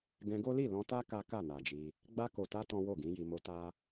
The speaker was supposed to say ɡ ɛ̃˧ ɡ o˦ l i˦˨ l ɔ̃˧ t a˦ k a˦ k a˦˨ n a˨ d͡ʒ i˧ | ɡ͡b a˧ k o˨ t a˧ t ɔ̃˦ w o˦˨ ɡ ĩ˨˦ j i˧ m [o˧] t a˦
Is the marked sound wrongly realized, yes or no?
no